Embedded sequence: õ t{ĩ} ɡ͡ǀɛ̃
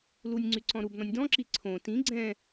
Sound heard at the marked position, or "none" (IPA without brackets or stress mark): ĩ